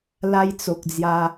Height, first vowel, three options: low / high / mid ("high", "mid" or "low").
low